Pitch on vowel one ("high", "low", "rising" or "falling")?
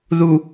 low